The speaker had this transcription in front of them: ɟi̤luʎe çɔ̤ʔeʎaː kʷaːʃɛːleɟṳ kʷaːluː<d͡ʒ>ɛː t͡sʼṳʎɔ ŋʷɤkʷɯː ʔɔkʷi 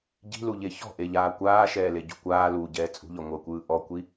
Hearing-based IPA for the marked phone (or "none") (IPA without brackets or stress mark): ɟ